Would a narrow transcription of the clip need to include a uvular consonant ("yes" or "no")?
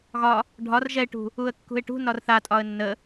no